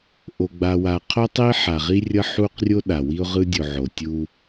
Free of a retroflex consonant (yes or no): yes